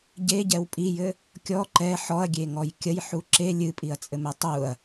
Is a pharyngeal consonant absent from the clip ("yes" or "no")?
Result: no